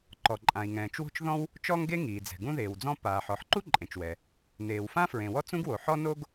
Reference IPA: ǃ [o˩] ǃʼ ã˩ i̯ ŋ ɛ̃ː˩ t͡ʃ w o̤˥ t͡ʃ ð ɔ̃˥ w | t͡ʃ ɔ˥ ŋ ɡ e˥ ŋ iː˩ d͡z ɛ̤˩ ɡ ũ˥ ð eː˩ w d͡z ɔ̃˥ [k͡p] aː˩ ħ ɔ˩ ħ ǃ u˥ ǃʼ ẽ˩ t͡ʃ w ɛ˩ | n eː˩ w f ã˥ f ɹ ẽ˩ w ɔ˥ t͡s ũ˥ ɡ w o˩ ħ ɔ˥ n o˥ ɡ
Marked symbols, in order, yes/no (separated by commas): no, no